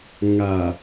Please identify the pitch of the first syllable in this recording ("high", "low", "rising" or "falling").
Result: low